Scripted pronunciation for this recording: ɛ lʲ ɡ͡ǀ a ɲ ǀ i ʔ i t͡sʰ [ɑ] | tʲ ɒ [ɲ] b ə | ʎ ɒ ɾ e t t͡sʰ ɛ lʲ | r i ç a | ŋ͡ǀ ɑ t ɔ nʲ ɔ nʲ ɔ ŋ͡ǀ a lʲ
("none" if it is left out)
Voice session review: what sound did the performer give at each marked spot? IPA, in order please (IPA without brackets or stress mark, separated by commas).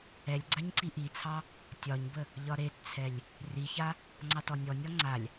ɑ, ɲ